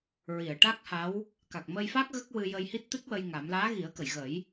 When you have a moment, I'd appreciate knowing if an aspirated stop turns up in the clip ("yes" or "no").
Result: no